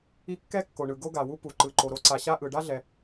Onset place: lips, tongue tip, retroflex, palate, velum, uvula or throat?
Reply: velum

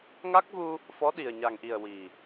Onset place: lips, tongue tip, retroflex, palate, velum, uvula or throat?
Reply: velum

